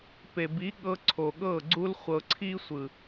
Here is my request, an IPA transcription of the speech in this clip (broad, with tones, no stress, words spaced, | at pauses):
pe˨bi˨˦ ɠɤ˧ ǀʰo˨ɠɤ˦˨ɡ͡ǀu˦l χʷɤ˧ǀʰi˦ sʷɯ˨